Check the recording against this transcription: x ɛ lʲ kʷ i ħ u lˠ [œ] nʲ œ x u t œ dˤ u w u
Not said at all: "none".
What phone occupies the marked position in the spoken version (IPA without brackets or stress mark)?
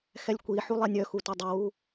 ɛ